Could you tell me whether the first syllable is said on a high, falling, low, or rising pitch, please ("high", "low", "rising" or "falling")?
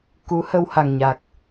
rising